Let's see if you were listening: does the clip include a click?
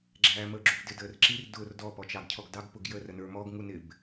yes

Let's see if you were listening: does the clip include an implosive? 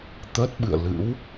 yes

